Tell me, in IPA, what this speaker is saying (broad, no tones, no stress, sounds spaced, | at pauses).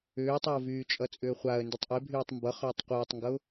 ʏː tˤ e ʊ̯ v yː t͡ʃʼ ʌ t͡sʼ ʏː χʷ a ə̯ n d y tˤ ʔ e bʱ yː tˤ m b ʌ χ ʏː tˤ qʷ ʌː tˤ ŋ ɡ ʌ ʊ̯